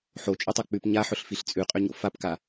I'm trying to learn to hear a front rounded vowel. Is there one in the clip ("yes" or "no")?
yes